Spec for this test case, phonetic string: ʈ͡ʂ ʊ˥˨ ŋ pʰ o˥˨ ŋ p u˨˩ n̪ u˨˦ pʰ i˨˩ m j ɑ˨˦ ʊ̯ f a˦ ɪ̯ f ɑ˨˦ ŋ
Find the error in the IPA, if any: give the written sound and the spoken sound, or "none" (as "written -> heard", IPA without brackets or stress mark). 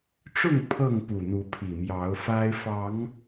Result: o˥˨ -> ɤ˥˨